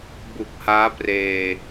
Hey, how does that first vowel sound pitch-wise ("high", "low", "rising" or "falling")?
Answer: low